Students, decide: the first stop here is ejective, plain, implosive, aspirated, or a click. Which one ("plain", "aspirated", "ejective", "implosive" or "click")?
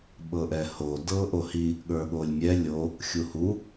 implosive